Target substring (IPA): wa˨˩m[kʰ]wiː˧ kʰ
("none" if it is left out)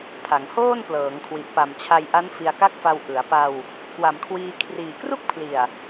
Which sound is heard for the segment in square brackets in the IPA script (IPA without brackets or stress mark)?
kʰ